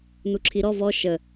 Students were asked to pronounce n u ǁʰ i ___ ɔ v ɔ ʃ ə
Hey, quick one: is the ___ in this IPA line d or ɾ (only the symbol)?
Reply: ɾ